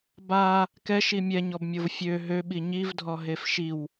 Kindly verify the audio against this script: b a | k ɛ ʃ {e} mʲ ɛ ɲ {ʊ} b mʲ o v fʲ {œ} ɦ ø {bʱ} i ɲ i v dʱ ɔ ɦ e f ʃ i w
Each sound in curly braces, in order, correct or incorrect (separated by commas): incorrect, incorrect, incorrect, incorrect